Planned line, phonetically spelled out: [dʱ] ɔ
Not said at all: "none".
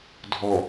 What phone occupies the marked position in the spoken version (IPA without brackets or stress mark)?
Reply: dʱ